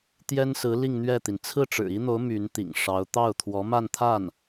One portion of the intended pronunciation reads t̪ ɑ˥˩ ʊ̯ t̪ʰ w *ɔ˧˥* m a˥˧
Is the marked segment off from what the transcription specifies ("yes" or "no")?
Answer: no